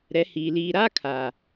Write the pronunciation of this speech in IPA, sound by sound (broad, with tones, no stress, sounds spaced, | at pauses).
ɾ ɛ˨˦ h iː˨ l iː˨ ɾ aː˦ kʰ aː˨